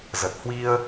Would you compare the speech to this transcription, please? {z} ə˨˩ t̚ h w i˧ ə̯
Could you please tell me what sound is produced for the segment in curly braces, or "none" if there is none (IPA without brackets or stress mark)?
z